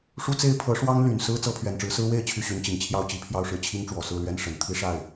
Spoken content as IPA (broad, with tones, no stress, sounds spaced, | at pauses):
ʂ u˥ t͡s e˥ ɪ̯ pʰ ɤ˧˥ ʂ w ɑ˥ ŋ l y˨˩ n s ɹ̩˥ t͡s ɤ˧˥ pʰ ɥ ɛ˨˩ n ʈ͡ʂ ɻ̩˧˥ s ɹ̩˥ w e˥˧ ɪ̯ t͡ɕʰ y˥˩ ɕ y˧˥ n t͡ɕ i˨˩ ŋ t͡ɕʰ j ɑ˥ ʊ̯ t͡ɕ i˧˥ pʰ j ɑ˥˧ ʊ̯ ʂ ɻ̩˥˩ t͡ɕʰ i˥ ŋ ʈ͡ʂ w ɔ˨˩ s ɹ̩˥˩ l ɥ ɛ˥ n ʂ ə˨˩ n t̪ʰ i˥ ʂ a˥˩ ɪ̯